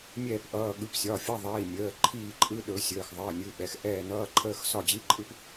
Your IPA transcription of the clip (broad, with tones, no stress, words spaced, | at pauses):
mʲɛː˦˨pʔʌː˩˧˩ ɠɯ˩˧˩psʲɒ˩˧˩fʲʌ˧˥˧ ðˤiː˩˧˩ mʲəː˩˧˩ ǃʰiː˦˨ǃʼɯ˧˥˧ ɗɵ˨˦sʲəː˩˧˩x ðˤəː˩˧˩ nʲɯ˩˧˩ɓɛ˩˧˩x ʔɛː˦˨nʌː˧˥˧ǃʰəː˧˥˧x sɒ˦˨d͡ʑi˧˥˧ǃʼɯ˥p